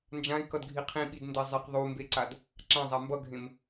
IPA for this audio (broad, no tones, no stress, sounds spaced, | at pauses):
n d͡ʒ ã i̯ k ʌ d ɡʱ i qʰ ĩ ɓ i d n d ɛ zˤ e q ðˤ u m b e ǀ a d | ǁ ã zˤ a m b ʌ ɡʱ ẽ m